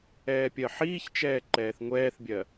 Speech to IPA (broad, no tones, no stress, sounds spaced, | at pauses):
ɛː pʲ ɜ ħ iː ç t͡ʃ ɛː ǃ ɛː θ ŋʷ ɛː θ bʲ ɜ